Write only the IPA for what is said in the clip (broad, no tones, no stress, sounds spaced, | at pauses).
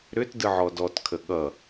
ɾ ʏ t d ɯ ʕ ɔ d ɔ t kʰ ə ɠ ʌ